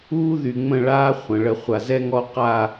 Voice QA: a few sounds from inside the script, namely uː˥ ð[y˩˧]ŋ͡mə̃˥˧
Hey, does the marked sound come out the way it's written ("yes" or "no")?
no